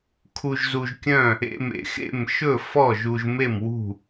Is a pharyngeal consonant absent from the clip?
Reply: yes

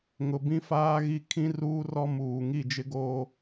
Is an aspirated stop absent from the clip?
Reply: no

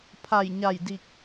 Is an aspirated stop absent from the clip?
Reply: no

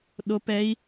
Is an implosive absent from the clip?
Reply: no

